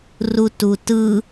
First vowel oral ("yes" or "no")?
yes